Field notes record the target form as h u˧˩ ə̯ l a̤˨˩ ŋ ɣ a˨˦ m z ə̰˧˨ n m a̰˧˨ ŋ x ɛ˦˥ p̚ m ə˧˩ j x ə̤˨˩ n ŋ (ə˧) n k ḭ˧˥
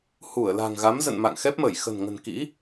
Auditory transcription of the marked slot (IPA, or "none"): ə̤˨˩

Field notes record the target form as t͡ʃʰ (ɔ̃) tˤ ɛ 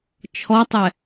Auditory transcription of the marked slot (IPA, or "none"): ɔ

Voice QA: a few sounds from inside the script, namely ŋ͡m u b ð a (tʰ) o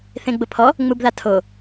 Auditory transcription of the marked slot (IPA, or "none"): tʰ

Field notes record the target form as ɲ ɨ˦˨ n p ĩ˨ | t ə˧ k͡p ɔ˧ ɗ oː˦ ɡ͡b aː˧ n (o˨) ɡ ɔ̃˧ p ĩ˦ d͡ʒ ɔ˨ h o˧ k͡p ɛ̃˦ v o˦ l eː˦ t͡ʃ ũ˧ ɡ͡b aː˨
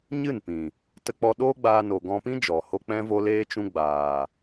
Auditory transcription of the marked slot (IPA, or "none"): o˨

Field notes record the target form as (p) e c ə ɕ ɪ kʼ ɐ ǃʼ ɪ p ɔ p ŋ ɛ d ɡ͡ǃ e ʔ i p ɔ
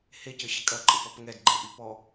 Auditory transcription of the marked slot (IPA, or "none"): h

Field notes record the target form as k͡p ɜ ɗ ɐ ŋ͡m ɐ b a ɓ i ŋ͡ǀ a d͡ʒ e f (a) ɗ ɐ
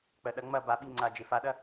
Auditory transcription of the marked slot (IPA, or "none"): a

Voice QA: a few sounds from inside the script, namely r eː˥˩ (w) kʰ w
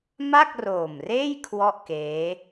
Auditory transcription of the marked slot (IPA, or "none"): j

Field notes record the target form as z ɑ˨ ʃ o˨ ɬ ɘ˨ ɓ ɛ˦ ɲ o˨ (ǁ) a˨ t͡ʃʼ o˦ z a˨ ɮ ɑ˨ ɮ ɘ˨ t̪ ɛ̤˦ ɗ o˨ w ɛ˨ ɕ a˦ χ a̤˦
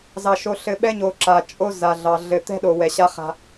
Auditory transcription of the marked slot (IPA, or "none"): ǁ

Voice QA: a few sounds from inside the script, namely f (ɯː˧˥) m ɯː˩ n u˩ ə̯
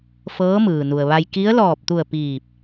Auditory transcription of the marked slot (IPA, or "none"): ɤː˧˥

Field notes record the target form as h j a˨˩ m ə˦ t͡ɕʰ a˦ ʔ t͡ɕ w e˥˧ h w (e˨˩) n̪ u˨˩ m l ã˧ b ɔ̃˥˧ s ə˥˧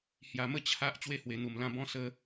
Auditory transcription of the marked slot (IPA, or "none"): e˨˩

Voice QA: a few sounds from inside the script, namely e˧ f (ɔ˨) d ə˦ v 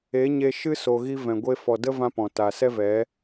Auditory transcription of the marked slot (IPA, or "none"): ɔ˨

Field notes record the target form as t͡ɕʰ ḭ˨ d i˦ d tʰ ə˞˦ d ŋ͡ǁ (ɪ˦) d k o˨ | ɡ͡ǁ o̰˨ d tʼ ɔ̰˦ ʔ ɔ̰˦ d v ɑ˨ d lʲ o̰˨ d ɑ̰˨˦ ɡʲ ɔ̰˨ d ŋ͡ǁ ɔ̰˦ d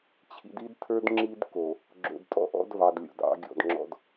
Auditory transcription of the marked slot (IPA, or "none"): i˦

